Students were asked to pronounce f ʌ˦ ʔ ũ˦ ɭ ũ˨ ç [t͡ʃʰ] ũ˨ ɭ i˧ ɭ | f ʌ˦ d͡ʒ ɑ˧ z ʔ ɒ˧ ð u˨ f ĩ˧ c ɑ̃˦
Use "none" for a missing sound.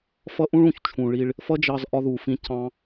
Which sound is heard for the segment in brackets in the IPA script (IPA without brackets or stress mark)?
t͡ʃʰ